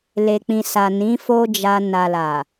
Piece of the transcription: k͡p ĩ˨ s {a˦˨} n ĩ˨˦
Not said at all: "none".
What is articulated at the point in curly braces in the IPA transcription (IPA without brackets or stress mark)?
a˨